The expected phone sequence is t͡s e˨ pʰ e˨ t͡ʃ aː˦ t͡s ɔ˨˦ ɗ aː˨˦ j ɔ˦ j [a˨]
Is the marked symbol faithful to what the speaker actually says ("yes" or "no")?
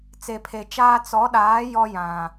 no